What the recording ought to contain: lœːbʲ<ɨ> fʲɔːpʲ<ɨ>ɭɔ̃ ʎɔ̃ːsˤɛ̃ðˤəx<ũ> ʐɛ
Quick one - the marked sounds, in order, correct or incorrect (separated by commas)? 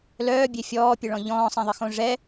incorrect, correct, incorrect